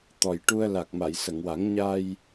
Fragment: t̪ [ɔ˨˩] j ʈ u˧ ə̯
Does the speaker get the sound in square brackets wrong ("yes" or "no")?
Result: no